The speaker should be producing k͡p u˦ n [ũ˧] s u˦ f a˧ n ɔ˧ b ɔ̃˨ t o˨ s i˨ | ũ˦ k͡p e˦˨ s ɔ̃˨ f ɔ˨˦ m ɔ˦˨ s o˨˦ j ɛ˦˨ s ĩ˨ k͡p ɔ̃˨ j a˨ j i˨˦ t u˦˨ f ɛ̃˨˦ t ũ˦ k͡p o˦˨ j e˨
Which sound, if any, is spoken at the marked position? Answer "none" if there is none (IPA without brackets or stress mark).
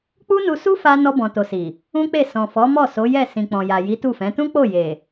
u˧